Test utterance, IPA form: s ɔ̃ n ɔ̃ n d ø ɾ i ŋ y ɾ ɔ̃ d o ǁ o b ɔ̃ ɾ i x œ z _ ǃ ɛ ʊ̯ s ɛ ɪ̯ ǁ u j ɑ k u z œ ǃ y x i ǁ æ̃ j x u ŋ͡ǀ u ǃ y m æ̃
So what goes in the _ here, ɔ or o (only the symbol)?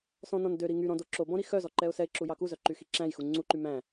ɔ